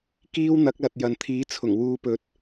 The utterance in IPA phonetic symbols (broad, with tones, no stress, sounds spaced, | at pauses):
k iː˥ w n̪ ɐ˨˥ k̚ l ɐ˨ t̚ j ɐ˨ n t̪ʰ iː˨˥ t͡sʰ ʊ˨˩ ŋ w uː˨˧ p ɵ˨˥ t̚